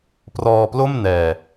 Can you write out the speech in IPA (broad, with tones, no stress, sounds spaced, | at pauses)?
p r ɔː˧ p l o˥˩ m n ɛː˧